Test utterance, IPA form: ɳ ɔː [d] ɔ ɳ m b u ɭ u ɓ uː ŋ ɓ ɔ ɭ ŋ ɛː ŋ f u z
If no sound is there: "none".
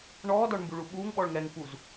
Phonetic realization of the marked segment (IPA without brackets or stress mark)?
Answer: d